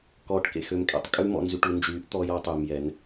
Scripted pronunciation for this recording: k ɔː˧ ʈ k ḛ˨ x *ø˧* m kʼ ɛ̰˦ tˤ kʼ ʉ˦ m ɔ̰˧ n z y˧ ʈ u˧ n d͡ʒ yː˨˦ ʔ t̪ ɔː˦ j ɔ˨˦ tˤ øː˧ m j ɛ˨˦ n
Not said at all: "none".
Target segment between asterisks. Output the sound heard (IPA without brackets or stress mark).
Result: ø˧